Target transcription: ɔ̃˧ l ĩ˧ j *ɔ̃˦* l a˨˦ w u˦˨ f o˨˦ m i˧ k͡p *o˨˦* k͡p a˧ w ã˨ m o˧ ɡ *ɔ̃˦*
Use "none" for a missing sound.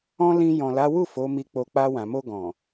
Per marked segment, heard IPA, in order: ɔ̃˨, o˧, ɔ̃˨

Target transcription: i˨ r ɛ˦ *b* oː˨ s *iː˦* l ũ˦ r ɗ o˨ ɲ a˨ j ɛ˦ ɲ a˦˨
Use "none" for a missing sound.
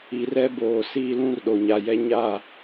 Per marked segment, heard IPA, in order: b, iː˦

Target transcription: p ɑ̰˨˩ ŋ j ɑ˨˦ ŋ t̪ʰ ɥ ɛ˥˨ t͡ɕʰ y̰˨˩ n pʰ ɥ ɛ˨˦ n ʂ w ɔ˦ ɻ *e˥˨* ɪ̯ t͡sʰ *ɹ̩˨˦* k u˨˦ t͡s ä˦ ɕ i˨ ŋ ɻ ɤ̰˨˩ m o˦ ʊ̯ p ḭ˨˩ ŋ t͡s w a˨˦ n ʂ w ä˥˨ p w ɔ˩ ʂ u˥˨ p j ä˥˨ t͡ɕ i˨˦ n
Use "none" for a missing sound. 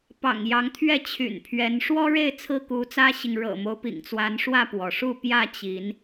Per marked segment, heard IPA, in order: e˥˨, ɹ̩˦

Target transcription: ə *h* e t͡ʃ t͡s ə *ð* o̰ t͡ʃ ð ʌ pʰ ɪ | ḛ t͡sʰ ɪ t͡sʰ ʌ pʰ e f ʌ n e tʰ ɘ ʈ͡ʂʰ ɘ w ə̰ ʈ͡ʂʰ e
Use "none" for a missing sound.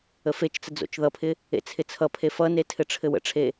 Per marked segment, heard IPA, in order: f, d͡z

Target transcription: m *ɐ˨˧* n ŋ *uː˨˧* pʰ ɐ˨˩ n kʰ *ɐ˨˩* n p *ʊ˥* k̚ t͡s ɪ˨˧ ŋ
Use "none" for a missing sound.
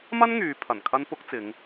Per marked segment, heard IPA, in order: ɐ˥, yː˨˧, ɐ˥, ʊ˥

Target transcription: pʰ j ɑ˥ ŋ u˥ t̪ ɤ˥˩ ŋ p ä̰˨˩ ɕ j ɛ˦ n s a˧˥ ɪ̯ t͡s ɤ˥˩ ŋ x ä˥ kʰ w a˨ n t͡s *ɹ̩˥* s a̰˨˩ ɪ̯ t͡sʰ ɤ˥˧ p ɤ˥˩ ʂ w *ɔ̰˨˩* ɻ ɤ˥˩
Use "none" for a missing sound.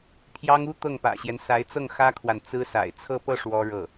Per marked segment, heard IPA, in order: ɹ̩˥, ɔ˥

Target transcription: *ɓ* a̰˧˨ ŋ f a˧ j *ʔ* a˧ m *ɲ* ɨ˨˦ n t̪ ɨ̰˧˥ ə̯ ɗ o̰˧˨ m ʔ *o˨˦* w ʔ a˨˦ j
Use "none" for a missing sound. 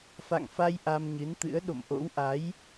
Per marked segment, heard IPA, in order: f, ʔ, ɲ, o̰˧˥

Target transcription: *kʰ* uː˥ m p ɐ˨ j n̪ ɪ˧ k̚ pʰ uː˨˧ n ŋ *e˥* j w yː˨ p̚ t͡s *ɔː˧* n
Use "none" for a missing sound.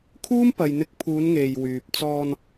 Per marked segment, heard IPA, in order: kʰ, e˨, ɔː˧

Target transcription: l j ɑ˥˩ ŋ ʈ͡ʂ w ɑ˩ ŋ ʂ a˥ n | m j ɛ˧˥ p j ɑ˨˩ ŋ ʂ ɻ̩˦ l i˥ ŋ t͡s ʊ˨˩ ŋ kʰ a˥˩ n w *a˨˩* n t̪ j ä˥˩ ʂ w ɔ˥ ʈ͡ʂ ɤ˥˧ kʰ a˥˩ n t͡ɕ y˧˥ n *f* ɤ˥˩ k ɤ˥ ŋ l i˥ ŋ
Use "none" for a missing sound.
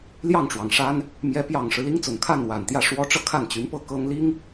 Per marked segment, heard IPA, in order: a˨˩, p

